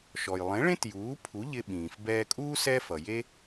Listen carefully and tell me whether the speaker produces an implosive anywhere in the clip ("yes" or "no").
yes